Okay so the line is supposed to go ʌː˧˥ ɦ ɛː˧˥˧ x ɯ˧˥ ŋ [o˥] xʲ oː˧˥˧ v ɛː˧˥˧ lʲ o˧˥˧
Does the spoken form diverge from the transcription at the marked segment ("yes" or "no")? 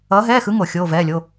yes